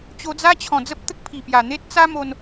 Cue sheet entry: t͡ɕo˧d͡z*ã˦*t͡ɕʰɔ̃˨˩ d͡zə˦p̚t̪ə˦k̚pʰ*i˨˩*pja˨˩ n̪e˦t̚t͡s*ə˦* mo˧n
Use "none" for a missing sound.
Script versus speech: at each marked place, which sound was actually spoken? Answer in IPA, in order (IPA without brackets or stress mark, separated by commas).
a˦, i˨˩, a˦